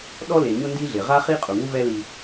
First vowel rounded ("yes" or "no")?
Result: yes